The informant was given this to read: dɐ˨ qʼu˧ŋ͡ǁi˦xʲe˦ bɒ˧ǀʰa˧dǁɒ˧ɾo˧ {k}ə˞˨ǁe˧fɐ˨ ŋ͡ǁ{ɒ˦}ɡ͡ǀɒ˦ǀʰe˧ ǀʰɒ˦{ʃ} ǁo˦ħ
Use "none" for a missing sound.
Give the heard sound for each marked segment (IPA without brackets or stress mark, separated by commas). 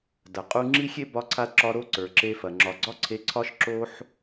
ǀ, ɒ˨, ʃ